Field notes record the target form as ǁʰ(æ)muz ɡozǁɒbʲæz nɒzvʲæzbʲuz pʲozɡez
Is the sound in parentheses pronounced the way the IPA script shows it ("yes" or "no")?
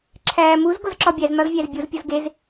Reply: no